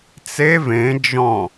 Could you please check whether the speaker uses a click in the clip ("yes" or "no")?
no